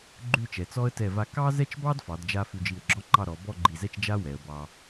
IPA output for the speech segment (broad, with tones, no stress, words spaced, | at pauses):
ɡ͡ǃʉ˥˧t͡ʃɛ˩˧t͡sɔ˥ə̯ tɛ˧˩va˧ kɑ˥zɛ˥t͡ʃbɑ˥d fɑ˩˧dd͡ʒa˧ fʉ˧d͡ʒi˧˩ə̯ɡ͡ǁɔ˥ŋ͡ǃɑ˥˧ ɾɔ˩˧ bɔ˥˧ɡ͡ǃi˧˩zɛ˥˧t͡ʃ d͡ʒa˥ wɛ˩˧ə̯bɑ˧